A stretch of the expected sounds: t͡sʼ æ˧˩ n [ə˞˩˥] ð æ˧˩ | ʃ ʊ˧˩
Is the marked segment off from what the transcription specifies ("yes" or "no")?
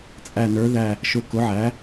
no